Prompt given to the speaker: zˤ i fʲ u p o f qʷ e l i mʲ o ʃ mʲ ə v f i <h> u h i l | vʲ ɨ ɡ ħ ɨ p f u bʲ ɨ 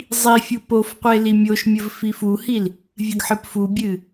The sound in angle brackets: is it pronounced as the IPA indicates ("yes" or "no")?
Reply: no